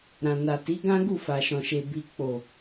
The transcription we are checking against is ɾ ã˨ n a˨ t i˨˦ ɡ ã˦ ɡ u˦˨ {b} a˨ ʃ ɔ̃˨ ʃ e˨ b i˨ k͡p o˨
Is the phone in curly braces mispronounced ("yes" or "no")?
yes